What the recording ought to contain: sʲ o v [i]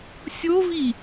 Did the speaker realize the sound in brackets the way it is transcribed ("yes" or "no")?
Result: yes